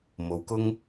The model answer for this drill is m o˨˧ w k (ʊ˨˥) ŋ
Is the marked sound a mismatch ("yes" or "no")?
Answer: yes